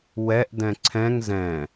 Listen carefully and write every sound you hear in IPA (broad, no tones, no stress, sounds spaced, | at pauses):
w ɛ ʔ d ɛ̃ ǀʰ ɛ̃ ŋ z ɛ̃